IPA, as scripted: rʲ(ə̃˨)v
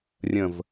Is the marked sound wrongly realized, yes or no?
no